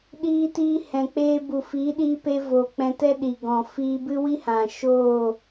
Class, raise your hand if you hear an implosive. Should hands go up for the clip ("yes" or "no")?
yes